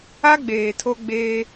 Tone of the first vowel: high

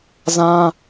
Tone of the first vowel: high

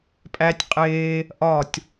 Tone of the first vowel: high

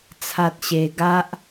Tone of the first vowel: high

